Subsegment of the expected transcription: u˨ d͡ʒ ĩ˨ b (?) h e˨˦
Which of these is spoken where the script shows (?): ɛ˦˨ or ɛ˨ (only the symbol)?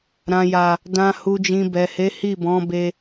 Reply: ɛ˨